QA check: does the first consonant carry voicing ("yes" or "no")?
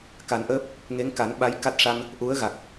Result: no